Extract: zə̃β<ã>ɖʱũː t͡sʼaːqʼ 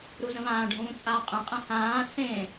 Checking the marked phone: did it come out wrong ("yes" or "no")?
yes